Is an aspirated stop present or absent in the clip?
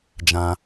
absent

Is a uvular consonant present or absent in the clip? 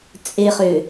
present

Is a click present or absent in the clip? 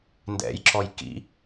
present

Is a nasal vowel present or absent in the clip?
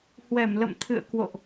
absent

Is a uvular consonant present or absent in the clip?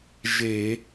absent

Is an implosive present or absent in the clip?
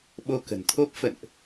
present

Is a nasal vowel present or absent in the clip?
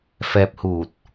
absent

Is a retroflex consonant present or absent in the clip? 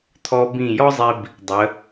absent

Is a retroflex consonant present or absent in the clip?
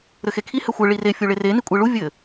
present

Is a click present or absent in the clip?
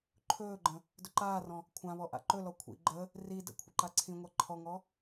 present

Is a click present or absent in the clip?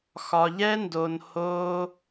absent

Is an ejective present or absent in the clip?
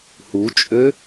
present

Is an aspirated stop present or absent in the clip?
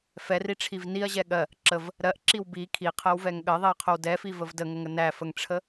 present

